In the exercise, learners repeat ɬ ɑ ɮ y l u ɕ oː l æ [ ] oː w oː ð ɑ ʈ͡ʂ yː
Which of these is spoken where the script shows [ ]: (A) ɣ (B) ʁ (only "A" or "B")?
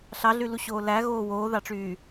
A